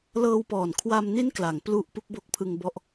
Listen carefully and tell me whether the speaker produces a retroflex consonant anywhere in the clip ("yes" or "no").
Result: no